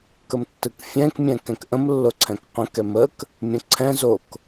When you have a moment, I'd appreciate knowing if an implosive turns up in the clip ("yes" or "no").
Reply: no